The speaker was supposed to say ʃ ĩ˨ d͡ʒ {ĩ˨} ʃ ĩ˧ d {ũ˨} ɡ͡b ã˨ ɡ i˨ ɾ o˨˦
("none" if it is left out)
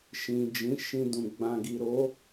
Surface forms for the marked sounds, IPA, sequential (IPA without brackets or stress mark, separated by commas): ĩ˨˦, ũ˨